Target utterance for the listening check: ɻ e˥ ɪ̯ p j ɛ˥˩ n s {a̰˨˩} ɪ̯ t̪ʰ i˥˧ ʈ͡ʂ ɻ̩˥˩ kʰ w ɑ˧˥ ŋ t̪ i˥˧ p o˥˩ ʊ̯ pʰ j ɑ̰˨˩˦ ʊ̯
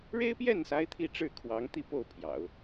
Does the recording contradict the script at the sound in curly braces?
yes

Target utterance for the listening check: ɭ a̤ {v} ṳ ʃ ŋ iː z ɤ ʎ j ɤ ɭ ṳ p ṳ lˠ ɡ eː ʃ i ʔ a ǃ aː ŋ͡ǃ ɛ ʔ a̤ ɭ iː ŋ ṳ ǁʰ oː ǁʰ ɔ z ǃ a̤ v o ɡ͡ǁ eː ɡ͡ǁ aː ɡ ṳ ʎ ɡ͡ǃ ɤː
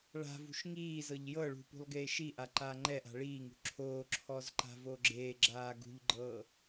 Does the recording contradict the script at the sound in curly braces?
no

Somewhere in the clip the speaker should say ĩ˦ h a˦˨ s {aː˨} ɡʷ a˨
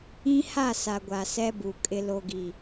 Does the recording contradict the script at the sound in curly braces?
yes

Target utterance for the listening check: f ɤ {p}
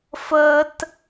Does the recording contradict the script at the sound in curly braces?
yes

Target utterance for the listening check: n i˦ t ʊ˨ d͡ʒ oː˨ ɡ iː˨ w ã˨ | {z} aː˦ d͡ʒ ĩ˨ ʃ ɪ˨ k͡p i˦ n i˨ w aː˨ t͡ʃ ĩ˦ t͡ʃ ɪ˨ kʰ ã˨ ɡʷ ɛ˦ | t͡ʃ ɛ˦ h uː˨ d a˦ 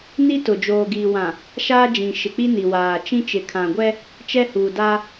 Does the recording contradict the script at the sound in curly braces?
yes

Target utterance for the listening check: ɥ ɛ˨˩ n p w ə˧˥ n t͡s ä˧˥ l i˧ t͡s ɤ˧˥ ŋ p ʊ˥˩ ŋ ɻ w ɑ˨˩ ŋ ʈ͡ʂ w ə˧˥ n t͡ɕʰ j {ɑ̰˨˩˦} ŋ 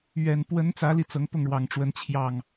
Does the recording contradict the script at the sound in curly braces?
yes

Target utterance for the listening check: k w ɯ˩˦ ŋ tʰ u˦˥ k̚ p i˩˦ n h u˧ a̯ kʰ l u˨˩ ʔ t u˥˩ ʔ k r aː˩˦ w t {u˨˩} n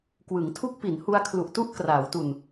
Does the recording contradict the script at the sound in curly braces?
no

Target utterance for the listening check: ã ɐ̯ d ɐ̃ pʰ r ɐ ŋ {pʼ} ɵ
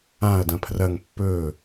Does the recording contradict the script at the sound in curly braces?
yes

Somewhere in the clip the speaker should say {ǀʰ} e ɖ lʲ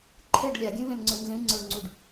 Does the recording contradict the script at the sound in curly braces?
yes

